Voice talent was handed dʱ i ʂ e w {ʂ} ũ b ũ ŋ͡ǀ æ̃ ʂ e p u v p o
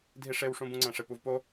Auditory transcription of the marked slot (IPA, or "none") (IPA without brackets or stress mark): ʂ